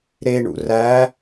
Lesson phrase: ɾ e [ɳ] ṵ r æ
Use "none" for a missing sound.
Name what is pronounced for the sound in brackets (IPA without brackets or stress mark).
ɳ